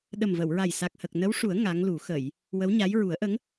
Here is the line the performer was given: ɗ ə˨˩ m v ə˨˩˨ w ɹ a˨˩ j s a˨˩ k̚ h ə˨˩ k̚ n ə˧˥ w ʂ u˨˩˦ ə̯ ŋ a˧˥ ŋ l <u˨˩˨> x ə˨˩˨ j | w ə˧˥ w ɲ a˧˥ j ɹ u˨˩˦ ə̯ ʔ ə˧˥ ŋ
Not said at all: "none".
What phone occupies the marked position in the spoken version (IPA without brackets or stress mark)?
u˨˩˦